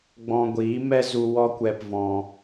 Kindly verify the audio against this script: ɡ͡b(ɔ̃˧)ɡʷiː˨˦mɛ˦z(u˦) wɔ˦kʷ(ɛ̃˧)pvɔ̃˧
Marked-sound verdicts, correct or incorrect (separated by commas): correct, incorrect, incorrect